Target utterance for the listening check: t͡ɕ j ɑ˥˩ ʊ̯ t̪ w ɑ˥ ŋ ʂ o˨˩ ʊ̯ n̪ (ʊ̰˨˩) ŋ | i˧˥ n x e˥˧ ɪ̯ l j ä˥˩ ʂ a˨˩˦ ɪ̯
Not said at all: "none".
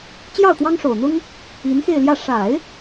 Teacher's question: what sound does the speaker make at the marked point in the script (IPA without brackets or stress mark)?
ʊ˥